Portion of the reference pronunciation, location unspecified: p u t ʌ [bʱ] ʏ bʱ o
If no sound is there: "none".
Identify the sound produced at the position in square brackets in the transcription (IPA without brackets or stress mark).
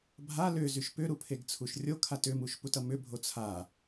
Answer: m